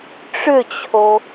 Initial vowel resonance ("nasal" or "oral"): oral